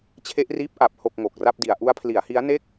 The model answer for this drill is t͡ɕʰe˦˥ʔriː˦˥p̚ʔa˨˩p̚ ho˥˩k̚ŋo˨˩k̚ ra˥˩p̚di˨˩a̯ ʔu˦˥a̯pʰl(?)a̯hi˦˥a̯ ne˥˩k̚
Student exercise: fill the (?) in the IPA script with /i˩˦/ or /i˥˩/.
i˩˦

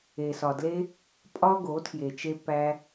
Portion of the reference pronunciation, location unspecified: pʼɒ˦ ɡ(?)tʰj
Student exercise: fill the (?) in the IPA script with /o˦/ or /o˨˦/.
o˨˦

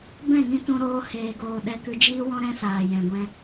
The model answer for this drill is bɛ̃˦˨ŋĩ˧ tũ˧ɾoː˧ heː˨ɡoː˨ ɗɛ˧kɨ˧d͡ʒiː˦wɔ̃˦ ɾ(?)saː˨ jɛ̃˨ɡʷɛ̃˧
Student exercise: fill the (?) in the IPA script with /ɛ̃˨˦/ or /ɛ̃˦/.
ɛ̃˦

